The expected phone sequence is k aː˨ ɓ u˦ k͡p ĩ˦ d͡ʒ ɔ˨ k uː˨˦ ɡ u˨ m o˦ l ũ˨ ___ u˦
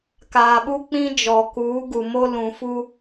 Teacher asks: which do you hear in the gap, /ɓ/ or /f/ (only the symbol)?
f